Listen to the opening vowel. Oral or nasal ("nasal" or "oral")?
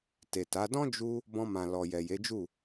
oral